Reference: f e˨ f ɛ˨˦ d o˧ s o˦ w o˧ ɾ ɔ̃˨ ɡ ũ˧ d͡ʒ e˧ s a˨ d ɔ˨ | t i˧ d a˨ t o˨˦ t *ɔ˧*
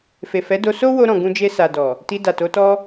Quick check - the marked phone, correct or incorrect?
correct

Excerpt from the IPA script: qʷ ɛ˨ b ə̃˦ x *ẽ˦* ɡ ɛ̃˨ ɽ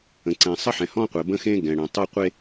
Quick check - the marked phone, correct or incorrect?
correct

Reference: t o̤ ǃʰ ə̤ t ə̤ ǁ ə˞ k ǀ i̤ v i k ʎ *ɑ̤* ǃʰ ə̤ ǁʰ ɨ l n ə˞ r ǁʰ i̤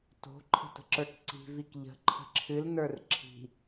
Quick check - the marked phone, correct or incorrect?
incorrect: ə̤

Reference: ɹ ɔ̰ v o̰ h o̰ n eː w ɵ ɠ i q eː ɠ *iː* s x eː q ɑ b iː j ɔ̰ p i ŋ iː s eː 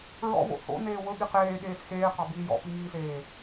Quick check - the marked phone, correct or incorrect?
incorrect: eː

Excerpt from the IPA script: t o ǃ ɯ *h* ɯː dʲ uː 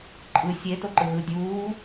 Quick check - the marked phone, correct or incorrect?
incorrect: ɦ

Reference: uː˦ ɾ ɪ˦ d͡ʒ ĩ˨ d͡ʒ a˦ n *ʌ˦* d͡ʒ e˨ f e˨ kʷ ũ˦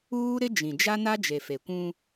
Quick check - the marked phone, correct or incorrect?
incorrect: a˦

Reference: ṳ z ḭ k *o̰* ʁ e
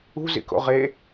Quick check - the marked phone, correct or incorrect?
correct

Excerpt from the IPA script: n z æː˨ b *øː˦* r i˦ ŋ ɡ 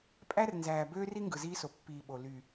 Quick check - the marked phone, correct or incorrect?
correct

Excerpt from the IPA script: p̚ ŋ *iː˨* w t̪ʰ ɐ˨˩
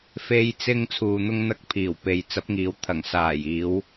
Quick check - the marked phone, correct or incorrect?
incorrect: iː˨˧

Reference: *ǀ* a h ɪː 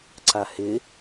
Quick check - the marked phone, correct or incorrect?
correct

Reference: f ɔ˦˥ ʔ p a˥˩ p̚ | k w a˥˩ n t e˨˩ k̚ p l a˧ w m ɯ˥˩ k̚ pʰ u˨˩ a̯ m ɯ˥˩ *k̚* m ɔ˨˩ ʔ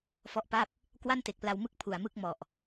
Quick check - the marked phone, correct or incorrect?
correct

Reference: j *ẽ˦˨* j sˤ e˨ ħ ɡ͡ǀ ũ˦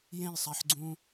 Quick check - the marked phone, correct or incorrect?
correct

